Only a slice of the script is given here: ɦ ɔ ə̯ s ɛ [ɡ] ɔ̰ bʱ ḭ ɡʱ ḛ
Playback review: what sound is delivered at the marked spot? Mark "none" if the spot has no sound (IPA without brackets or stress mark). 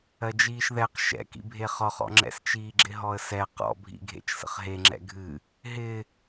q